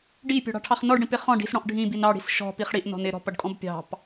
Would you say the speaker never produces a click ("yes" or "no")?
yes